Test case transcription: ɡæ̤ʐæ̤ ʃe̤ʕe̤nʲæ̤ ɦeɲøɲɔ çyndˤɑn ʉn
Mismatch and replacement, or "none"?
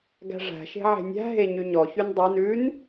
ø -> y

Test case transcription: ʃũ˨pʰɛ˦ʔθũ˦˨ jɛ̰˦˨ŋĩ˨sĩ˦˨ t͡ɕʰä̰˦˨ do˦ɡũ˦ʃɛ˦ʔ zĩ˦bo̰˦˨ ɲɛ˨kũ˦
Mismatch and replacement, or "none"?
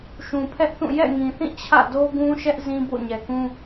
s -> θ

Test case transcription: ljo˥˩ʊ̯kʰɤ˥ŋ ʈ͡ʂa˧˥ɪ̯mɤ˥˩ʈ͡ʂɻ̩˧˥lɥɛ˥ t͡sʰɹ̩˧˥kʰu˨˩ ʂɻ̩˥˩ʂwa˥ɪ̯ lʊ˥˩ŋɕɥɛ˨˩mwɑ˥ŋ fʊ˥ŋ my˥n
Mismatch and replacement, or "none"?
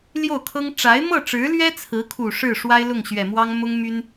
f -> m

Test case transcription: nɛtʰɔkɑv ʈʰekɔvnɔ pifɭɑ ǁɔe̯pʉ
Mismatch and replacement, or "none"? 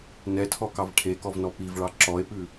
f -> v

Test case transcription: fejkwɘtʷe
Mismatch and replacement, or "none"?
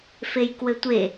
none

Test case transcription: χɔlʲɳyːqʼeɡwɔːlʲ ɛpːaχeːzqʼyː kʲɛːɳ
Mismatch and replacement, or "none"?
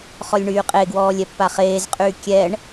none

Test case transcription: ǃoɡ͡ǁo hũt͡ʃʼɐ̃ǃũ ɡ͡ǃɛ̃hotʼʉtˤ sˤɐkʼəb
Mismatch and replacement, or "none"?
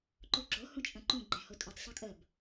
none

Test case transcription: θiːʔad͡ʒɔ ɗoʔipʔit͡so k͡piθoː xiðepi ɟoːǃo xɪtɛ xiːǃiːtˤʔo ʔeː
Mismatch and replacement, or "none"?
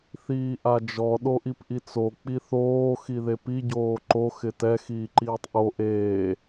none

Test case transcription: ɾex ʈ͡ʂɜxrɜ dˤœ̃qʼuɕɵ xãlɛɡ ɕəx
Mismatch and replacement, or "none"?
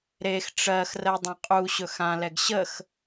none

